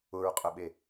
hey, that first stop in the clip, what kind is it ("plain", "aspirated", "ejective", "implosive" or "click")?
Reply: ejective